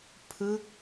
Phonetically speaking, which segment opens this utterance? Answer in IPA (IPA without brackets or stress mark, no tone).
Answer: pʰ